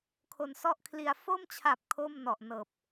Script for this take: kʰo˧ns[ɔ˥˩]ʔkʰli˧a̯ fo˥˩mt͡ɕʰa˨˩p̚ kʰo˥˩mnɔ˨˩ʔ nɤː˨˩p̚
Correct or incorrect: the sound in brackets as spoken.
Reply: correct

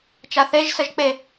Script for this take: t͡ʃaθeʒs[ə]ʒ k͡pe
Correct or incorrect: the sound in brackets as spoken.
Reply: correct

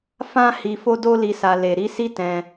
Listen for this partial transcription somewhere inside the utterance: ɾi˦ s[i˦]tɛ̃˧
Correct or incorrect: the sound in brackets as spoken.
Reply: correct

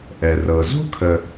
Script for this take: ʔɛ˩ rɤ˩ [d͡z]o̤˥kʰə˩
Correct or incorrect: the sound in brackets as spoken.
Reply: incorrect: z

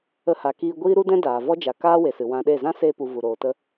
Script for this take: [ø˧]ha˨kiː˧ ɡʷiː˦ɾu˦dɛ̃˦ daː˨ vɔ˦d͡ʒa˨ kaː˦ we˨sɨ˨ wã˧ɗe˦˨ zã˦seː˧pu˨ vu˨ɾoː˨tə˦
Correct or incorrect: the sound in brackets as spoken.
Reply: incorrect: ə˧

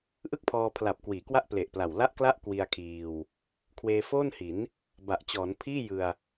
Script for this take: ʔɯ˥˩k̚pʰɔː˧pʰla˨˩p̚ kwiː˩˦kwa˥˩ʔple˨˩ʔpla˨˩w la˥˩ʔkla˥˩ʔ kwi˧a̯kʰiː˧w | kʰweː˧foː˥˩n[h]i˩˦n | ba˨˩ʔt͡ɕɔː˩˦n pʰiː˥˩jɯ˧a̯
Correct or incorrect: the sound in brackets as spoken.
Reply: correct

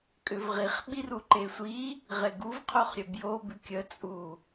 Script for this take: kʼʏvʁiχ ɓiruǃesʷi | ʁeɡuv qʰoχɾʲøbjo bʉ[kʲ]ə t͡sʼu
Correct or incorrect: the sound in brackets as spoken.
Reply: correct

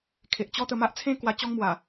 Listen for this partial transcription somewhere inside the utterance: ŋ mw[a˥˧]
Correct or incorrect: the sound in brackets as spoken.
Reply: incorrect: a˨˩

